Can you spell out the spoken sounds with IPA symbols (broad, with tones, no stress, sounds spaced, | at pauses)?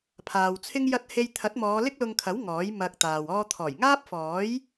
pʰ aː˨ w t͡sʰ ɪ˥ ŋ j ɐ˧ t̚ h e˧ j t̪ʰ ɐ˨˥ t̚ m ɔː˨˧ l ɪ˥ k̚ l ʊ˧ ŋ kʰ ɐ˨˥ w ŋ ɔː˨˥ j m ɐ˧ k̚ t̪ aː˨ w ɔː˧ t̪ʰ ɔː˨˩ j ŋ aː˥ p̚ f ɔː˨˥ j